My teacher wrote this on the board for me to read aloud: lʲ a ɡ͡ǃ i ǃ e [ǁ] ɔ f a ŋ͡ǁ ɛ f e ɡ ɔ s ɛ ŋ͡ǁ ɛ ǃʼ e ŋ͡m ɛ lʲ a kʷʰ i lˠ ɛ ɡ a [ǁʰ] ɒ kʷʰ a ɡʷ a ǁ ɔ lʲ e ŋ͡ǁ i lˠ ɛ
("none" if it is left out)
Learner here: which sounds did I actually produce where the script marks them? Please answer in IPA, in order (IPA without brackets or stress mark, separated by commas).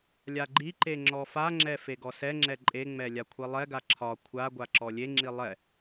ŋ͡ǁ, ǁʰ